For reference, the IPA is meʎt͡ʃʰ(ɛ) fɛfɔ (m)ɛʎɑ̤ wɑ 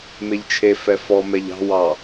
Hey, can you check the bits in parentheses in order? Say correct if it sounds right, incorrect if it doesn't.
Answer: incorrect: e, correct

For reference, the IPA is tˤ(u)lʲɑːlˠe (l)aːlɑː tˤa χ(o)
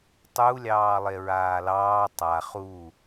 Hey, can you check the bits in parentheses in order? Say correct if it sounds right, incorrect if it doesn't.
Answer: correct, incorrect: ɹ, incorrect: u

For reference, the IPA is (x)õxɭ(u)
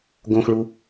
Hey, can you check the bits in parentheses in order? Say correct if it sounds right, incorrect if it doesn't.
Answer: incorrect: ɡ, correct

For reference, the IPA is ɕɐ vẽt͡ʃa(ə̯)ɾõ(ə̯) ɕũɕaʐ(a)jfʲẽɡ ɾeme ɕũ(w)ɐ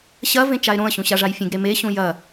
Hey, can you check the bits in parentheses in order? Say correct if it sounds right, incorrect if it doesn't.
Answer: incorrect: ɪ̯, correct, correct, incorrect: j

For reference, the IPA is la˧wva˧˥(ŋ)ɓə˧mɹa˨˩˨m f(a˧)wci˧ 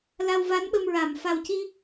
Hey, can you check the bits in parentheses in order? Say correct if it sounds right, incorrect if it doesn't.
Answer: incorrect: n, incorrect: a˨˩

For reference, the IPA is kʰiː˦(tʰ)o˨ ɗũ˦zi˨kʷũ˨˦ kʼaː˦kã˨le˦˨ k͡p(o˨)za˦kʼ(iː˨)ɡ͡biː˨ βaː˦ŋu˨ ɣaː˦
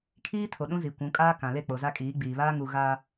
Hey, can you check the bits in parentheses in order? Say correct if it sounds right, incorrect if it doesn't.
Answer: correct, correct, incorrect: iː˨˦

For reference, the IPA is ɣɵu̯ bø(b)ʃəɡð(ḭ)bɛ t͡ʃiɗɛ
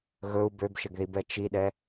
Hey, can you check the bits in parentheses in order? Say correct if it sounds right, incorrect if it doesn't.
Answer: correct, incorrect: i

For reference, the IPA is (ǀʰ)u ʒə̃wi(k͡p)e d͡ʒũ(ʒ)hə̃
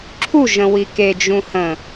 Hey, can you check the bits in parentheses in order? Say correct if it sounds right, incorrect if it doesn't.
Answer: incorrect: ǁʰ, incorrect: k, incorrect: none

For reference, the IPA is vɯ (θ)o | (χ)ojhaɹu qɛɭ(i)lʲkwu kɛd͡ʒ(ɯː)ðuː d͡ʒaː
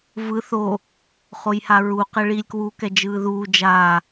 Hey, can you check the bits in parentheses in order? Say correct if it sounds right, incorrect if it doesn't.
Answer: correct, correct, correct, correct

